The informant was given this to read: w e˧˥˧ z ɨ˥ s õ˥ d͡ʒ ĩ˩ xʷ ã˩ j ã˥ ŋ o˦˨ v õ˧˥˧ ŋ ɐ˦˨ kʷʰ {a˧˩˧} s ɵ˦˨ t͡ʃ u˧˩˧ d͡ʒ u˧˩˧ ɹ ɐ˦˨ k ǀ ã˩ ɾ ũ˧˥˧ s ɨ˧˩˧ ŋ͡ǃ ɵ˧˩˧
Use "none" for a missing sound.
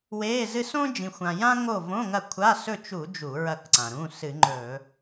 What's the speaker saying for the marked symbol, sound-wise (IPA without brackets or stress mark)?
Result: a˧˥˧